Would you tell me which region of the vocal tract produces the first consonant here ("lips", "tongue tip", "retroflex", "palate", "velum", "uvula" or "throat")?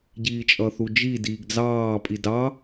palate